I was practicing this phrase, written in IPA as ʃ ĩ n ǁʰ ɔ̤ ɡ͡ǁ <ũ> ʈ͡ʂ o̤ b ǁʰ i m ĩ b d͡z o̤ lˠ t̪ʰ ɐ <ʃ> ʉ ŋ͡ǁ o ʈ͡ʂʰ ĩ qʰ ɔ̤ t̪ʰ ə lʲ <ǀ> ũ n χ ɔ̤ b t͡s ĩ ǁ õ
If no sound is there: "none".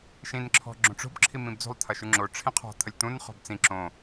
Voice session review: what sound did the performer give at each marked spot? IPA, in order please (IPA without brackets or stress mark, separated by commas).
õ, ʃ, t̪